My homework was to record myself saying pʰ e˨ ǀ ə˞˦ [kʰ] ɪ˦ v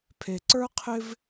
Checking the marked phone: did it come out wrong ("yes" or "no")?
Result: yes